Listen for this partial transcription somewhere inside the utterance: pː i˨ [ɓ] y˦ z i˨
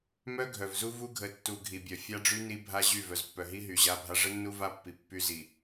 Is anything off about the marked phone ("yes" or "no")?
yes